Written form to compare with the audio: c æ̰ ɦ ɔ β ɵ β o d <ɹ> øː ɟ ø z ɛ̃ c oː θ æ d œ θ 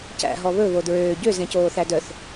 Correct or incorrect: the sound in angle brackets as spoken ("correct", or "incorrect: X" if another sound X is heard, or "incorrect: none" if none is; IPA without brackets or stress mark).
correct